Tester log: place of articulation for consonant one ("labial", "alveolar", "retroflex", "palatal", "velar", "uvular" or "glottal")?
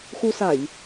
velar